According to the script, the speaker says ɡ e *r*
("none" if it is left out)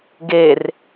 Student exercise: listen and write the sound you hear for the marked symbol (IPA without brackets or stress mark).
r